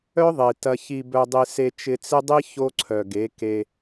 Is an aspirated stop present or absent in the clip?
present